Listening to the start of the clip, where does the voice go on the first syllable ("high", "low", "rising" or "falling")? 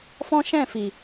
high